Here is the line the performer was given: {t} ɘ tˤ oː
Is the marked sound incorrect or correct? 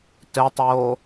correct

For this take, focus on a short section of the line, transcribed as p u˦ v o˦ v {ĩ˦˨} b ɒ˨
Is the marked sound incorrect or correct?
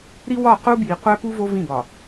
correct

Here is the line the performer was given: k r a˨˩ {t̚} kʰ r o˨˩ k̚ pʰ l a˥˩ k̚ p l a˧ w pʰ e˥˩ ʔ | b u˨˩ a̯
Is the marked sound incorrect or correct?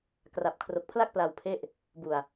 incorrect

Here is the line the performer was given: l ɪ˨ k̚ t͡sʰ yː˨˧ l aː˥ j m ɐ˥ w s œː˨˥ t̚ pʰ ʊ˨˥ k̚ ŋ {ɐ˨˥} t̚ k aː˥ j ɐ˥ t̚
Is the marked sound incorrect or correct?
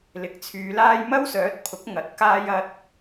correct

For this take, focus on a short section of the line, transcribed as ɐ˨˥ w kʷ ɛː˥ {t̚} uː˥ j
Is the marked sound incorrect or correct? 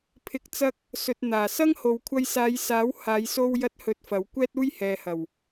correct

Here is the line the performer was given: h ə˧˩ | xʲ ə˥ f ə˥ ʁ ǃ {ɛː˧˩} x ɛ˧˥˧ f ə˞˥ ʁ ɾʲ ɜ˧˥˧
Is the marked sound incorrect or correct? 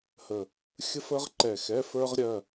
incorrect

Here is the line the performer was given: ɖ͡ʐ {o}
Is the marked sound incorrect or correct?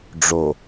correct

